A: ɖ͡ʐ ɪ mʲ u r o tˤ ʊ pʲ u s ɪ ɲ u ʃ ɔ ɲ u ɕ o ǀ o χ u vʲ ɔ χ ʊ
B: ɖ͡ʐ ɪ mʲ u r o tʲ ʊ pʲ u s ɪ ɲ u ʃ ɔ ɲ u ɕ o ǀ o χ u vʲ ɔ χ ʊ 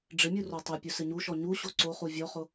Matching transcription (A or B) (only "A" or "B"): A